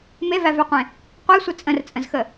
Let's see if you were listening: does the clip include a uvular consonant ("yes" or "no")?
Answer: yes